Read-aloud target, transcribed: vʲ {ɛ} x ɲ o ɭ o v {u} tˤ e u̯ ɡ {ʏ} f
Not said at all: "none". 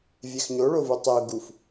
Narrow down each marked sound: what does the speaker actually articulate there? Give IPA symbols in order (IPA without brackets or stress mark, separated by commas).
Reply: ɛ, u, u